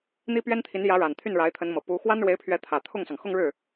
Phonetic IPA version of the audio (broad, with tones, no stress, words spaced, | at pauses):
n̪i˥pɥɛ˥nt̪ʰi˧˥njä˧˥ ɻa˨˩n t̪ʰy˥˩nɻa˧˥ɪ̯t̪ʰə˧˥nmɤ˨˩ pu˧˥ xwa˥nɻwe˧˥ɪ̯pʰɥɛ˧˥t̪ʰä˨˩ t̪ʰʊ˥˩ŋsɑ˩ŋ xʊ˥˧ŋɻɻ̩˥˩